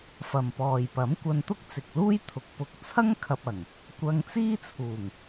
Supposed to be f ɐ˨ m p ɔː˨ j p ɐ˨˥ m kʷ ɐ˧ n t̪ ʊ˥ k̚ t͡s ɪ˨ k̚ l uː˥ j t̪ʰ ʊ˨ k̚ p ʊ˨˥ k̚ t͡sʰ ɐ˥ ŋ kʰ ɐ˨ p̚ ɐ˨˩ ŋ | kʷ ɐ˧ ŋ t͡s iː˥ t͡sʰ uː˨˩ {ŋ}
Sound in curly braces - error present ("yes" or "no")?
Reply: no